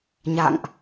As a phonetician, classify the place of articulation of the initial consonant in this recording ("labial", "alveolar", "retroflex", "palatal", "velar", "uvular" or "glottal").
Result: palatal